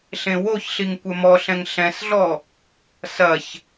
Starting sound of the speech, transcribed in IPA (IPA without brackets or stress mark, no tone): ɬ